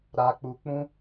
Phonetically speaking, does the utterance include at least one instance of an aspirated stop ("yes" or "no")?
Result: no